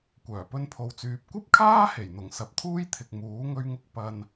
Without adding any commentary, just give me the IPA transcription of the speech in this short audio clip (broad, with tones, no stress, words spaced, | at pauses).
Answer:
kʷœː˨˩pɵ˧npʰo˨wt͡syː˨p̚ kʷɐ˥p̚kʰaː˥he˨˩jn̪ʊ˨˩ŋ sɐ˨p̚t̪ʰuː˥jt̪ʰɪ˨k̚ muː˨˥ ŋɵ˧ɥŋʊ˧k̚ pɐ˧n